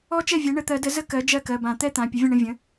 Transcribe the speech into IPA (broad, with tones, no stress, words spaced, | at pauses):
ɔ˥ t͡ʃɛ˥˩vʲɛ˩˥ ɳə˩˧˩t̪ɜ˨˩˦də˩˥ zə˥kɜ˩˥ d͡ʒɜ˥˩kɜ˩˧˩bã˨˩˦ t̪ɛ˥t̪ã˩˧˩ pʲə˩˥vʲə̃˥˩ɳə̃˥˩ vʲə̃˩˥